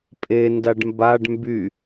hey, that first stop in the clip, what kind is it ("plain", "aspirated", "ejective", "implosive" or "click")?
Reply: ejective